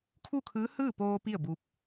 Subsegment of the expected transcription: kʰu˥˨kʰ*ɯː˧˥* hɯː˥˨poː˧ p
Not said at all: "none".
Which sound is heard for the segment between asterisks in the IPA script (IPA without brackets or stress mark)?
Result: ɯː˧˥